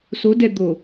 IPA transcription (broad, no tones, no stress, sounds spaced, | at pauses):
s o d ɛ d̪ o